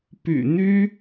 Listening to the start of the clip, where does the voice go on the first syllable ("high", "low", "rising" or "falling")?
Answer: low